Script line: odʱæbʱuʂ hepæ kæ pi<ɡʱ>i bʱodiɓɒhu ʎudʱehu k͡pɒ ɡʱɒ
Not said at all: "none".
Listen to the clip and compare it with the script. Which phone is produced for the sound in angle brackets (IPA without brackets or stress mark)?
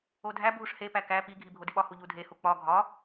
ɡʱ